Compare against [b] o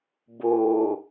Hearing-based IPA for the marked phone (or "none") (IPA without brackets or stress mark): b